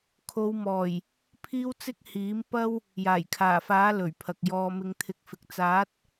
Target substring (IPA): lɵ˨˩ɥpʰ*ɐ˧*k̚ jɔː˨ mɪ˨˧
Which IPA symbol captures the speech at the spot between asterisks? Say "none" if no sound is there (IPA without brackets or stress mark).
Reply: ɐ˨